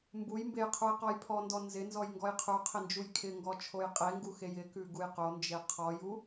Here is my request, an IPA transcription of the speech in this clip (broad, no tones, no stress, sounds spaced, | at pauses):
m b u j m b e j qʰ u j q ɔ j pʰ ɔ n d ɔ n z ɪ n z ɔ j ŋ ɡ ɔ j qʰ u qʰ ɪ n d͡ʒ u j kʰ ɪ ŋ ɡ ɔ t͡ʃʰ o j qʼ e ŋ ɡ u x e j ɪ k ʉ ɡ u j q o n d͡ʒ e qʰ ɔ j u